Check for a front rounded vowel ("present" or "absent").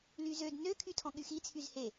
present